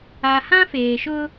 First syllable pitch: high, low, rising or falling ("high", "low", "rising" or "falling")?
low